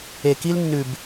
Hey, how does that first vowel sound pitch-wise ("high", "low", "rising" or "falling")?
low